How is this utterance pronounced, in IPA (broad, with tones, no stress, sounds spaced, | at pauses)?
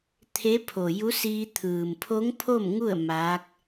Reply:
t̪ʰ e˧˥ pʰ o˩ j u˧˥ s iː˧ t̪ʰ ɯː˩ m pʰ o˧˥ ŋ pʰ o˥˨ m ŋ u˥˨ ə̯ m aː˧˥ k̚